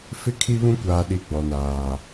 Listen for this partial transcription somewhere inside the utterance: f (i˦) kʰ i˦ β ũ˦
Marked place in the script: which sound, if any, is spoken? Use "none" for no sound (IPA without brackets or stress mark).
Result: ɪ˦